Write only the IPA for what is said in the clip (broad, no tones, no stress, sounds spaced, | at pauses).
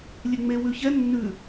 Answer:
lʲ e ŋ͡m e w ʉ ç ɛ nː ʉ